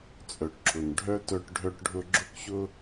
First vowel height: mid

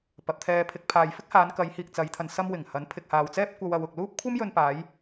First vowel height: low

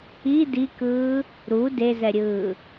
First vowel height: high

